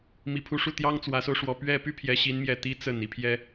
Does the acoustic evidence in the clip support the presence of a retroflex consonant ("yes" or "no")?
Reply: yes